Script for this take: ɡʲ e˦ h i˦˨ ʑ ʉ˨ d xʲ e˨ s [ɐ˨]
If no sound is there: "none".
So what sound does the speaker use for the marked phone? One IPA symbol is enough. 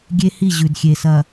ɐ˨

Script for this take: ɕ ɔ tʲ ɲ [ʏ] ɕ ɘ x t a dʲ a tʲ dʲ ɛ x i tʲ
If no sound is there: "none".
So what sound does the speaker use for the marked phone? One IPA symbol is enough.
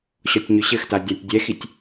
ʏ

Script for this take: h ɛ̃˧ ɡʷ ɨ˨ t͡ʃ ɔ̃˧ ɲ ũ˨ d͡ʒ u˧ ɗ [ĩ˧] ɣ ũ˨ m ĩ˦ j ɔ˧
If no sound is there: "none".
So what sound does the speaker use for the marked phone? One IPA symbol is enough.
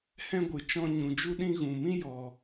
ĩ˧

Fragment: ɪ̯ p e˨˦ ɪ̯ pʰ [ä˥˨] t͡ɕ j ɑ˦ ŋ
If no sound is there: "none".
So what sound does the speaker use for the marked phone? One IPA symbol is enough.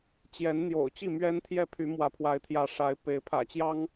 ä̰˨˩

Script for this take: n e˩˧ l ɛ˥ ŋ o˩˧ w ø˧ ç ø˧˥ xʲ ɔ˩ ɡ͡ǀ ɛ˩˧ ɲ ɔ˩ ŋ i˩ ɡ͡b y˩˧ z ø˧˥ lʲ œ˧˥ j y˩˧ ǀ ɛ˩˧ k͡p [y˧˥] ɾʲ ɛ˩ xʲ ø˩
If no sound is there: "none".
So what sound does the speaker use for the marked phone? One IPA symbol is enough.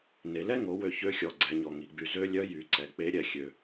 e˧˥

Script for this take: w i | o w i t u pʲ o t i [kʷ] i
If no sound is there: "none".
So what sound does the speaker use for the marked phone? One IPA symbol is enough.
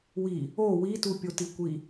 kʷ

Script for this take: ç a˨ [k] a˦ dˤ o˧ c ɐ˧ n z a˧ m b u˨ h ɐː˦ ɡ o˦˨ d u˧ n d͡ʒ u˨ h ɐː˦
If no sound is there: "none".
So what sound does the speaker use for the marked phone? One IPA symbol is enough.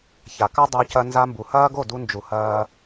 k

